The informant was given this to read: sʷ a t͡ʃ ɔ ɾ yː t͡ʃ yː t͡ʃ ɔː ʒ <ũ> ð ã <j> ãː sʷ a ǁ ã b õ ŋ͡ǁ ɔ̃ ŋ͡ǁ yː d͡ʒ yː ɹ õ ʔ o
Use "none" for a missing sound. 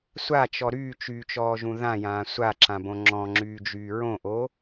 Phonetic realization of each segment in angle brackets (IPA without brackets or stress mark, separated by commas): ũ, j